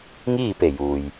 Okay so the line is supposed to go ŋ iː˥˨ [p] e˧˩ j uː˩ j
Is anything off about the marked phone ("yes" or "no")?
no